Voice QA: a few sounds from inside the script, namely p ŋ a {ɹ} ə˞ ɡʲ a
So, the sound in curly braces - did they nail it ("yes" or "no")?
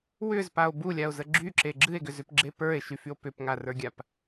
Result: no